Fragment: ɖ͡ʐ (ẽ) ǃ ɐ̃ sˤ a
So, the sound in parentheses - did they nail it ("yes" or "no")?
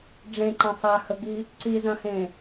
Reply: yes